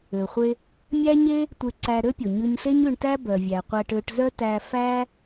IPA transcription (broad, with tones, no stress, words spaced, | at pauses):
ø˩χʷe˧ | mʲæ˥ɲe˥ | tʷe˧ǀæ˧ɾø˥pʲo˩ ɲʉ˧ɲɬe˥ɲʉ˧ɳtæ˥ bœ˩vʲæ˩qʷæ˧ʈ ø˧ʈzœ˥ tæ˧ fæ˥